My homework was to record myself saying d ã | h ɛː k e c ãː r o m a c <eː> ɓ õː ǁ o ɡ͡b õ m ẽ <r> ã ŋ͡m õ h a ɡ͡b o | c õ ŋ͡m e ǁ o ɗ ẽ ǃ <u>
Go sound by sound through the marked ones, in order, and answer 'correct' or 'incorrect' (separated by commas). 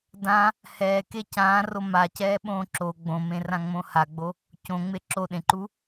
incorrect, correct, correct